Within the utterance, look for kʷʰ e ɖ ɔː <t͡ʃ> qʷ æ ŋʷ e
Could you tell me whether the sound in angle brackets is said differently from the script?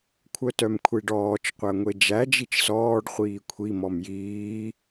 no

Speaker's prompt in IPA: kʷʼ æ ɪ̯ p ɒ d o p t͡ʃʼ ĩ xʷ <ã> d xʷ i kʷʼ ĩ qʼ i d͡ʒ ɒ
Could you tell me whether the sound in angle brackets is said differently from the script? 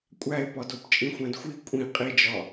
yes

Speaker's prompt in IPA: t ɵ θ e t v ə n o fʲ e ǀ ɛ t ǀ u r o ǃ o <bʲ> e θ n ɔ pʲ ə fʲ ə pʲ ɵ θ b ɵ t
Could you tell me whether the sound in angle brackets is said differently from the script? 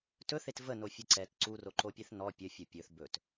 yes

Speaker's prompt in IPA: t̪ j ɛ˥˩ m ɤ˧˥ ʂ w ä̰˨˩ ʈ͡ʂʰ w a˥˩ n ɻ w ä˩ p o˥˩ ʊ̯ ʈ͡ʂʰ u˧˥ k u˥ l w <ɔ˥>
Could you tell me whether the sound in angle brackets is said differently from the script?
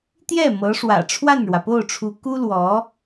yes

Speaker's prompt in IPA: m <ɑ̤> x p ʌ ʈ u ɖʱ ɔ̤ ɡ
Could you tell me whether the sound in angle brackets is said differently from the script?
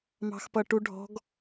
no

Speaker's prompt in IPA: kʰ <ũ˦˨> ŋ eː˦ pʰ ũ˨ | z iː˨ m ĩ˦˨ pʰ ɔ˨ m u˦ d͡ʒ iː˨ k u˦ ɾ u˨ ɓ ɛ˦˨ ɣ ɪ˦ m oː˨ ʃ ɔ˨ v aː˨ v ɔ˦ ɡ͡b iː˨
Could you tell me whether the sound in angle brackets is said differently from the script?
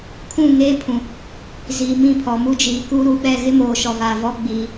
no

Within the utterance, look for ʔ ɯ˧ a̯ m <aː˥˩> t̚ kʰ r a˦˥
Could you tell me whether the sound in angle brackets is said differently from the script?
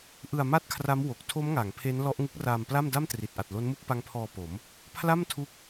yes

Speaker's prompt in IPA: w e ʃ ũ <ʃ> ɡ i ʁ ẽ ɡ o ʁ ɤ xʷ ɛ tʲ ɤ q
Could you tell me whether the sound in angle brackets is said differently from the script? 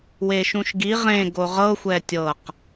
no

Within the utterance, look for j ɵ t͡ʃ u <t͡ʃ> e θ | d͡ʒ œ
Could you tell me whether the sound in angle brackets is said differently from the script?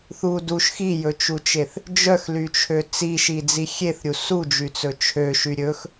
no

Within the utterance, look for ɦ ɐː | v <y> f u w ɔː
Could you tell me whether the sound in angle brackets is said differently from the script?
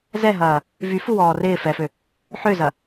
no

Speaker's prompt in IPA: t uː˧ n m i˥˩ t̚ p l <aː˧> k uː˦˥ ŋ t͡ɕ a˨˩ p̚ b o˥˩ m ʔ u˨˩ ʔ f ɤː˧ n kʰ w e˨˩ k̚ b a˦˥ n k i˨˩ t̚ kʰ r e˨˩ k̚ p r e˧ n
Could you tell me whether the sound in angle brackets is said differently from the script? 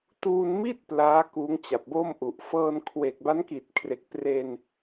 yes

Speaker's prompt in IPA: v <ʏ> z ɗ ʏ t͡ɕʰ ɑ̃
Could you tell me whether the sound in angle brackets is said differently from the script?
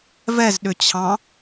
yes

